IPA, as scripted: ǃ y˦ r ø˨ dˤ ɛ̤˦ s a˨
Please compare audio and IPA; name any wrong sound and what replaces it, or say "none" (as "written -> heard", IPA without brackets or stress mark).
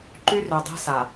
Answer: none